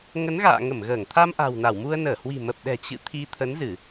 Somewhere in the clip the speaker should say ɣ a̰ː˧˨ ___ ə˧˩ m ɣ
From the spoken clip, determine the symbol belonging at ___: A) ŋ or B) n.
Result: A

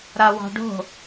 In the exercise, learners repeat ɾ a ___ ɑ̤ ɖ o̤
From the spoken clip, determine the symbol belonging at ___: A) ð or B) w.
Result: B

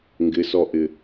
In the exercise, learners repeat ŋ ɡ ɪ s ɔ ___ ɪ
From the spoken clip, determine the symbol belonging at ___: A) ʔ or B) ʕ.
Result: A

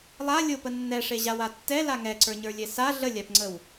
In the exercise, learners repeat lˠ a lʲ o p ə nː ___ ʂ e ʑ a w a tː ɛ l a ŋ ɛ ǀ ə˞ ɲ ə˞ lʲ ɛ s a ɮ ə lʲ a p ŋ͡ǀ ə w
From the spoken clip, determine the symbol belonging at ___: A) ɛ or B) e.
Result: A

